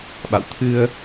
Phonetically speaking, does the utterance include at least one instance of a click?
no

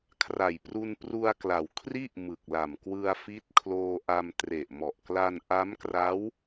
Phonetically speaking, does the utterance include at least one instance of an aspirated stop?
yes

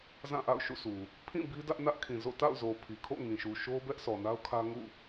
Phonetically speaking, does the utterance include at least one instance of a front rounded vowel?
no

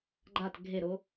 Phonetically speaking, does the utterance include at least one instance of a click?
yes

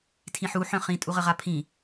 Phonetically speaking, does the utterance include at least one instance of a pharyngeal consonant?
yes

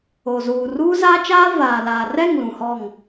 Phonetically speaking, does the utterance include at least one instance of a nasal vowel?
yes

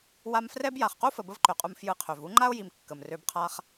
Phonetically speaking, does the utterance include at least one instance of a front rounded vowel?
yes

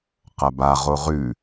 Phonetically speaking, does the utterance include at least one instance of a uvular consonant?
yes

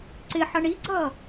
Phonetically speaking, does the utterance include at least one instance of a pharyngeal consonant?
yes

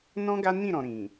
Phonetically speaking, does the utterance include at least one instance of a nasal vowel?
yes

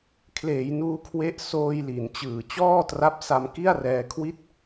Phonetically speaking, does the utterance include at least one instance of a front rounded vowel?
no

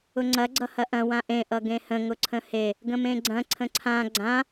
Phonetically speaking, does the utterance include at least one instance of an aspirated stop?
yes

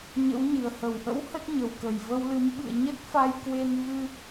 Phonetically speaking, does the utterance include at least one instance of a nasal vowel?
no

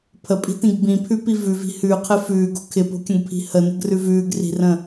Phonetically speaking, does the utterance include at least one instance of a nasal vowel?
yes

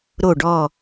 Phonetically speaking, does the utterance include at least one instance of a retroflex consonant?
yes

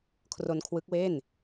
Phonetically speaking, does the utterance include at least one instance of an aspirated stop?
yes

